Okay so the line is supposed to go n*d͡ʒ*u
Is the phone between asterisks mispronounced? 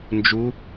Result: no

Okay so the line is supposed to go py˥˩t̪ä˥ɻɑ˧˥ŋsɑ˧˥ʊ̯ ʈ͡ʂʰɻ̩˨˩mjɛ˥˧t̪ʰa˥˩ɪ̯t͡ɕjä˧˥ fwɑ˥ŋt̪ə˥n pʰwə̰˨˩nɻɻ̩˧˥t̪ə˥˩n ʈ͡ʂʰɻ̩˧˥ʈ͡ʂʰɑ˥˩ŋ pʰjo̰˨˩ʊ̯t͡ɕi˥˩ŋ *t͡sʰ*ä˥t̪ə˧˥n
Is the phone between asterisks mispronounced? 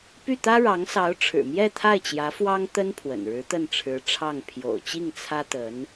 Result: no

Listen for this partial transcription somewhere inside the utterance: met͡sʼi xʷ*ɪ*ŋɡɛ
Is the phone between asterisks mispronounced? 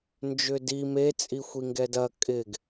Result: yes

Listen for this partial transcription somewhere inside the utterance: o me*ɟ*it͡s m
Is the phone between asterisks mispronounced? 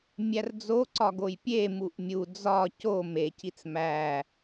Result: yes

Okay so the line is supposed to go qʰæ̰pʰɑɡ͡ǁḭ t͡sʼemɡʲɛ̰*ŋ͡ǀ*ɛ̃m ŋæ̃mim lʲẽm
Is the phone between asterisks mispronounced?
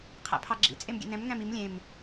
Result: yes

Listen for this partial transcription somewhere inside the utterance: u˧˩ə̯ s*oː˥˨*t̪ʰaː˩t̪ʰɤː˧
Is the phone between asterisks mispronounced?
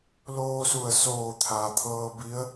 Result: yes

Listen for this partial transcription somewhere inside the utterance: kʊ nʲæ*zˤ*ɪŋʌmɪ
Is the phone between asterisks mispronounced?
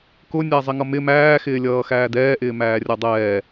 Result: no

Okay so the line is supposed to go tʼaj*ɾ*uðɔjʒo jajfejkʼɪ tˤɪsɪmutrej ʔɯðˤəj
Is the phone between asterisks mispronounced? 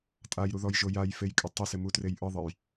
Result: no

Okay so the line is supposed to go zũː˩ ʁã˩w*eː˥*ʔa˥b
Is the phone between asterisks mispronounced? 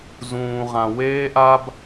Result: no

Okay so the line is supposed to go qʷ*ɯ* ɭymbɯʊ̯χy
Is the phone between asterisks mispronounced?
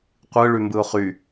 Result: no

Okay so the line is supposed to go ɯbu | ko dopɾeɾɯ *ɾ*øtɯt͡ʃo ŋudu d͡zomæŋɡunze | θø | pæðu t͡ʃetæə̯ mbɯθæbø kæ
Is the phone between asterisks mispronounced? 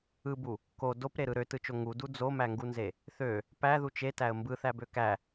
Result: no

